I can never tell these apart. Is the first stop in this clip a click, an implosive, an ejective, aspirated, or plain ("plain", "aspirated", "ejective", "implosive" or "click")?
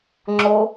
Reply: click